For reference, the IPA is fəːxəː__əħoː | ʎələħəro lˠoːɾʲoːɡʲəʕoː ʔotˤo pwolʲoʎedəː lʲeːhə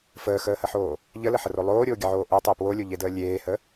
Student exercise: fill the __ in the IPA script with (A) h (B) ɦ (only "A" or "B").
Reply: A